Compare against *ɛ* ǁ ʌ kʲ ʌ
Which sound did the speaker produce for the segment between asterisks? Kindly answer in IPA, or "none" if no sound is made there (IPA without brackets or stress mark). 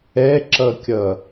ɛ